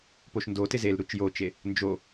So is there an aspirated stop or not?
no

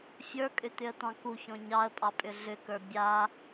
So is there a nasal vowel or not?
yes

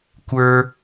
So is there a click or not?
no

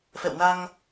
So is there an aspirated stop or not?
no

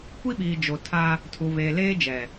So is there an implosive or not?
yes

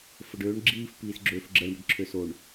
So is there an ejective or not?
no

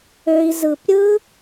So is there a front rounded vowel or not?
yes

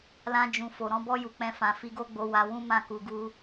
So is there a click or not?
no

